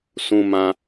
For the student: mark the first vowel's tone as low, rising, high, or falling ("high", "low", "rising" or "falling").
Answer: low